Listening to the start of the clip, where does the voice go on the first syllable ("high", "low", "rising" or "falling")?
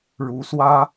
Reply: rising